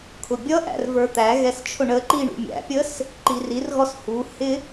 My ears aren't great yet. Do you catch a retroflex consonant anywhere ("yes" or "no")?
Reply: yes